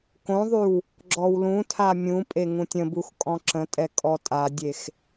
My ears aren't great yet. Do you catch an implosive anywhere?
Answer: no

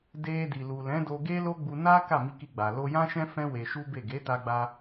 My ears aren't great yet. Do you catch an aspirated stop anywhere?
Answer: no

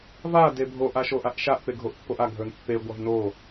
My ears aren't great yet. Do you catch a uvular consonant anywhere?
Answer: no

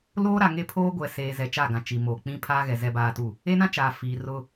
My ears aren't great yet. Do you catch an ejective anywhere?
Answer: no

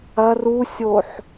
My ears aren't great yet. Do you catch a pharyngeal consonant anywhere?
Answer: yes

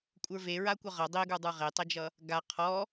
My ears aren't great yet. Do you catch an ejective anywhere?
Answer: yes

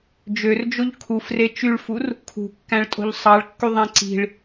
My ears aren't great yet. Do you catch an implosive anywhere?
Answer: no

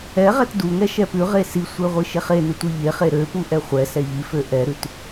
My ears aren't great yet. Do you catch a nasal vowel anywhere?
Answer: no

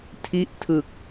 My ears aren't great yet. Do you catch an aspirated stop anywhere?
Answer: yes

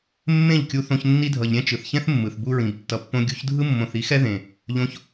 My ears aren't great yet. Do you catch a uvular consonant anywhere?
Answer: no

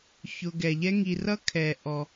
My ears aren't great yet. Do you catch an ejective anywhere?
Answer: no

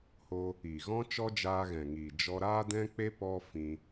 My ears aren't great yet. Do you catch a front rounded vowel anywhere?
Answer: no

